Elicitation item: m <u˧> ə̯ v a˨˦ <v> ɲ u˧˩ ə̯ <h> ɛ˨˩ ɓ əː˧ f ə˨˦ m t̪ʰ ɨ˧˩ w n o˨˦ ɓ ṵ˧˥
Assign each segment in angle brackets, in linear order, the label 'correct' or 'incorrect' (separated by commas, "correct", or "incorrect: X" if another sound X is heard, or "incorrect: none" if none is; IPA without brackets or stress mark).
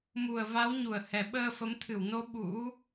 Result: incorrect: u˨˩, incorrect: w, correct